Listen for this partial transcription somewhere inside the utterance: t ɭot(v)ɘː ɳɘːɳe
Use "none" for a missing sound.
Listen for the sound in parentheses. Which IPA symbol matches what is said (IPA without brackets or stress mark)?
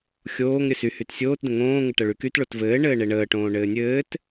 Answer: v